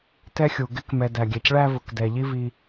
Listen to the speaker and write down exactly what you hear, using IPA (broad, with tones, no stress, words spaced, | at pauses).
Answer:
tɛ˥xʲu˩ ɡɪ˥kmɛ˨ dæ˩ɡʲɛ˩cɭæ˦ vʊ˩kdɛ˩ ʎi˦vi˨